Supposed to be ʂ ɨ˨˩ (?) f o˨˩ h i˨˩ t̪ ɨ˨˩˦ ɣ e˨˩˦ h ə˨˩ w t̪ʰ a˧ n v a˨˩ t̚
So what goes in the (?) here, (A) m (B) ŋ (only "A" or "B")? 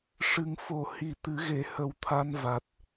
B